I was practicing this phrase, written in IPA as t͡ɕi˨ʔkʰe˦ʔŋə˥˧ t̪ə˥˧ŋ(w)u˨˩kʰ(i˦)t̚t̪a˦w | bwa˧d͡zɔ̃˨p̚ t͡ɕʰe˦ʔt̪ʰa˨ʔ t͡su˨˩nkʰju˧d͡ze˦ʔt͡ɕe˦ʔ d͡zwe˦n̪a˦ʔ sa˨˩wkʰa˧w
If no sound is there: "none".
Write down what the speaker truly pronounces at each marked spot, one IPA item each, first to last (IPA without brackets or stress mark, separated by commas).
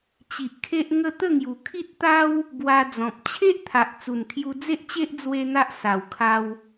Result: j, i˦